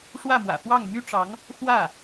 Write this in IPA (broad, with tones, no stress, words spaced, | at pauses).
ʂwä˥˩mwä̰˨˩fwɑ˥˩ŋ my˥ʈ͡ʂɑ˧˥ŋ | xwä˥˩